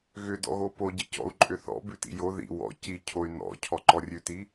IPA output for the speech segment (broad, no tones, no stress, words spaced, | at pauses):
ɣʏdɔ̰ɣo poɟicɔ̰u̯ ǃʼʏθɔ̰ bʉtḭjo ðḭ wɔ̰ ci cʰoy̯nɔ̰ cʰɔǃɔrʲʉti